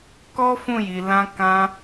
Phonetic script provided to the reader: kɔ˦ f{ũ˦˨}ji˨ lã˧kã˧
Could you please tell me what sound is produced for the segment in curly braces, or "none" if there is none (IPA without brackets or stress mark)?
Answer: ũ˦˨